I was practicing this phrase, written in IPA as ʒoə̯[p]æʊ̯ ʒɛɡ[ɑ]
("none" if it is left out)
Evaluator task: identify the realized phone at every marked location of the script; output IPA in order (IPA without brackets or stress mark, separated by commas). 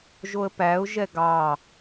p, ɑ